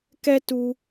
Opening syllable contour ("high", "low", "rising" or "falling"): high